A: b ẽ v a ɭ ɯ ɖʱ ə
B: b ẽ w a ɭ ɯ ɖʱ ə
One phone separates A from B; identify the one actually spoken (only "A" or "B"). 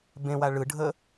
B